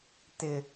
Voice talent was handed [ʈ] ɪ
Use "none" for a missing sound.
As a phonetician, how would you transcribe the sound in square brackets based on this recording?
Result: t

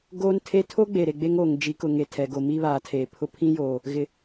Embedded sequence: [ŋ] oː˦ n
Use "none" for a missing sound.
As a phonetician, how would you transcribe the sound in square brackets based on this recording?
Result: ɡ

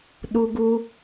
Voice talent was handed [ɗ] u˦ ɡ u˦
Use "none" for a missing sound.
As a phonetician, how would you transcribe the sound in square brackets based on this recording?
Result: ɗ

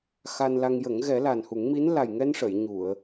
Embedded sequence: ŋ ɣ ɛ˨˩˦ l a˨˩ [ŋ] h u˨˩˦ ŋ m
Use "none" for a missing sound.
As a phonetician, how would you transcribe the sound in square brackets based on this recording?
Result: n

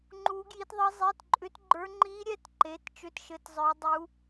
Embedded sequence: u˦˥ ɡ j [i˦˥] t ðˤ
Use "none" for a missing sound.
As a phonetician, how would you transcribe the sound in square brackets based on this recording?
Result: i˦˥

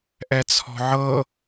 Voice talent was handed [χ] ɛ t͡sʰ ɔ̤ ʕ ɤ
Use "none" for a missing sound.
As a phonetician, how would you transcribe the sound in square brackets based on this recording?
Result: ʔ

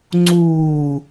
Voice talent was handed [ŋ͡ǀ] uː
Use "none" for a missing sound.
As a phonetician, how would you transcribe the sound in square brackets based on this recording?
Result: ŋ͡ǀ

